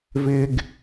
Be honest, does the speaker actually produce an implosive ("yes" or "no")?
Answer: no